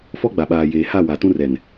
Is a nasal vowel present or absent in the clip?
present